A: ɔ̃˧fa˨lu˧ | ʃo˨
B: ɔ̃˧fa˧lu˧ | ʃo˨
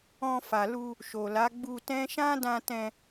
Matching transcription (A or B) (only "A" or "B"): A